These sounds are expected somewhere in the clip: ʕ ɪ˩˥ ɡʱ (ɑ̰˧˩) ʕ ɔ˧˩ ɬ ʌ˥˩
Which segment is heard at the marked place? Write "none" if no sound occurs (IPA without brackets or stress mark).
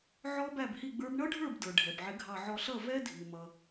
ɑ˧˩